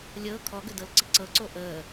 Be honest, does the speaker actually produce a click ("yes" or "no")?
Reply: yes